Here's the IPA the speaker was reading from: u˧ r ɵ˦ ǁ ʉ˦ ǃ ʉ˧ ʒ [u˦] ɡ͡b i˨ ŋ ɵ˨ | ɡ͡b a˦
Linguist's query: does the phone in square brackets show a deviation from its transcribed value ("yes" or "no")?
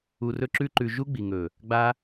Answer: no